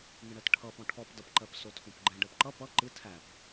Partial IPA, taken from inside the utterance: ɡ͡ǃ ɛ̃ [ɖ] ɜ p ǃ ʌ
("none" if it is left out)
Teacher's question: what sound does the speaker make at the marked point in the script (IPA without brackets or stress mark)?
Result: ɖ